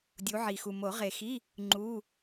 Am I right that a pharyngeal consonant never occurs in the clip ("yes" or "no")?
no